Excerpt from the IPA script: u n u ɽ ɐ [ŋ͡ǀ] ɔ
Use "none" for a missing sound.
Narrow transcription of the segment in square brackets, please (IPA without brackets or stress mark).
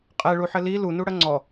ŋ͡ǀ